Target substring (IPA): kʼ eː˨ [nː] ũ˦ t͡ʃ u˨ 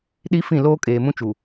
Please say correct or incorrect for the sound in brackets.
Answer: incorrect